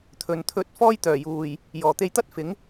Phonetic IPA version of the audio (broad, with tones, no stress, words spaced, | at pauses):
t̪ʰɵ˨˩nt̪ʰɵ˧t̚ fɔː˥jt̪œː˨˩juː˨˩j | jɔː˨˩t̪e˧jt̪ɐ˥t̚ fɪ˨˥ŋ